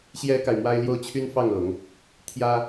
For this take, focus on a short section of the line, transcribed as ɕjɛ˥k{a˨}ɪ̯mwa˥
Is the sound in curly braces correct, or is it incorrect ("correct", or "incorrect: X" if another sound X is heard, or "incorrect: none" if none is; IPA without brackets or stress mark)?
correct